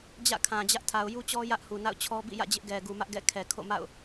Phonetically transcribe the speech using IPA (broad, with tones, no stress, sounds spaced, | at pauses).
d͡ʑ ä̰˦˨ kʰ ã˨ d͡ʑ ä˦ ʔ tʰ a˨ ʊ̯ j u˦ t͡ɕ ɔ˦ j ä˦ ʔ h u˨ n a̰˦˨ ʊ̯ t͡ɕʰ ɔ˦ b ḭ˦˨ j ä̰˦˨ d͡ʑ ɪ˦ ʔ ɡ ɛ˨ ɡ u˨ m ä˦ ʔ ɡ ɛ̰˦˨ kʰ ɛ˨ kʰ o̰˦˨ m a̰˦˨ ʊ̯